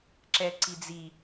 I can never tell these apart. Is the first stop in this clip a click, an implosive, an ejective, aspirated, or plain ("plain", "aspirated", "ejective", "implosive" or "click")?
click